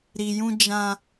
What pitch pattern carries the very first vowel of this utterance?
low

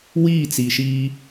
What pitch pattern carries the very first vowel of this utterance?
falling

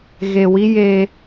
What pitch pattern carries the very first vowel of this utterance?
low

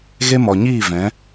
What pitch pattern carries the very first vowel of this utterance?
high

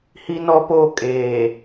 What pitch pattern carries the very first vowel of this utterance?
high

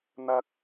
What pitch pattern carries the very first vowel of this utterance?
high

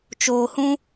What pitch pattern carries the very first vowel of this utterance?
low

